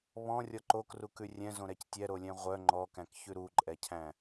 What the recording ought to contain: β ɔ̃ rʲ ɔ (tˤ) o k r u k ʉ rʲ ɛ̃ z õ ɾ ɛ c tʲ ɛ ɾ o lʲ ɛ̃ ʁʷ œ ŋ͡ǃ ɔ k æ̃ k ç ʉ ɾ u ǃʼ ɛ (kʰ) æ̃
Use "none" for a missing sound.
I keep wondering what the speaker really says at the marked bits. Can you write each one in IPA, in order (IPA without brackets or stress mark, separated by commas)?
ǃ, cʰ